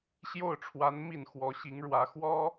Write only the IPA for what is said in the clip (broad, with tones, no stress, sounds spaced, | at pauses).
ɕ j o˥˩ ʊ̯ ʈ͡ʂʰ w a˧˥ n m i˥˩ n x w ɔ˧˥ ɕ i˧˥ ŋ ɻ w ä˧˥ x w ɔ˥